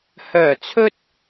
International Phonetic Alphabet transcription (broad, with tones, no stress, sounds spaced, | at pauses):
h œː˨˩ t͡sʰ ɵ˧ t̚